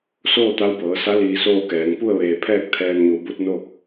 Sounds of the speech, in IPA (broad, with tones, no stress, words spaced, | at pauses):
soː˥˨t̪a˧˥wbɤː˩˧sa˧˥ liː˧soː˥˨kɛː˩˧ŋ pu˥˨ə̯ʋeː˧˩pʰɛː˥˨k̚ t̪ʰɛː˧nɲu˩˧bu˧˥t̚no˥˨k̚